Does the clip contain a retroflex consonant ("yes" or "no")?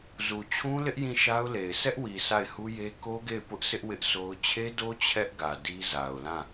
no